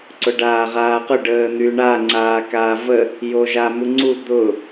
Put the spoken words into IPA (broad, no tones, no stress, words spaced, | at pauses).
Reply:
ǀʊɖaːʁaːqʊ ɖəːn̪yɳa ŋ͡ǀaːkaːvə | joʒamuŋ͡ǀu d̪ʊ